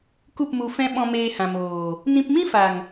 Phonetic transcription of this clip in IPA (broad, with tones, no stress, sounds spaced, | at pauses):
k u˦˨ p m u˧ f ɛ̃˦ ɓ ɔ̃˧ m eː˧ h ã˨ m oː˨ | n ĩ˧ p m ĩ˦ f a˨ ŋ